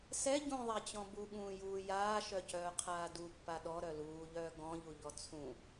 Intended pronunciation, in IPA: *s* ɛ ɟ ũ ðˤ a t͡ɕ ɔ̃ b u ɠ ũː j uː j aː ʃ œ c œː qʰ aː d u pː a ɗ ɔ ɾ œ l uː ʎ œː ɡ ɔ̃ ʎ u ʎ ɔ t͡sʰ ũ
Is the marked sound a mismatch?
no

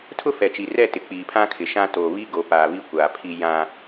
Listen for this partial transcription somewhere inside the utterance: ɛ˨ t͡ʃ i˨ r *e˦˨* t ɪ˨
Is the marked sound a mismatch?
yes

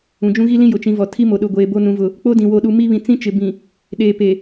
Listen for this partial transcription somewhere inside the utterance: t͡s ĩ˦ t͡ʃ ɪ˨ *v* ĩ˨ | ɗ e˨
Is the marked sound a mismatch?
yes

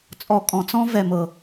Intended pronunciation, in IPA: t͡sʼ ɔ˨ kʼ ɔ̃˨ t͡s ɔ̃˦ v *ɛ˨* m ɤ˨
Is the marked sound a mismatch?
no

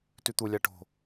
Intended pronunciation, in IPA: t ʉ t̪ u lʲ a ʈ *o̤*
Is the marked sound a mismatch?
no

